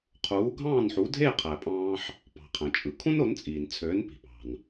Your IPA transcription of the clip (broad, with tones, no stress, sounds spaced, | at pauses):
qʰ uː˩˥ ɡʱ ɑ̃ː˥˩ n ħ u˩˥ dʱ eː˥˩ qʰ æ˩ pʼ ɑ̃ː˧ ħ | p ɑ̤˩ qʰ æ̃˩ t͡ʃʼ ɯ˩ kʰ ũ˥ n o˩˥ n t͡sʼ iː˩ n t͡sʰ øː˩˥ n p i̤˩ p ɑ̤˩ n